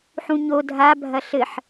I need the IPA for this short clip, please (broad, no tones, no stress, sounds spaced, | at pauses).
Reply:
ħ ũ ɲ o dʱ a bʱ ɐ ɬ ɘ ħ